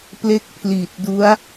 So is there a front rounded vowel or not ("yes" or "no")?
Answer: no